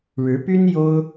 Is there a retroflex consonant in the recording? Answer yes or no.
yes